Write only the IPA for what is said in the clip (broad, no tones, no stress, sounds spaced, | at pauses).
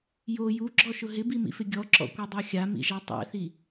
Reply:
j o j u ɡ͡ǁ ɔ ʃ ʊ ɦ ɪ b i m ḭ f ɪ ɡʲ ɔ ǁ ɔ̰ kʷ ɛ dˤ a xʲ a m ḭ ʒ a tˤ ɛ̰ θ i